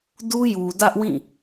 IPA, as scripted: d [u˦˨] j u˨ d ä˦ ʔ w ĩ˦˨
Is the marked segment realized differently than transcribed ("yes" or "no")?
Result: yes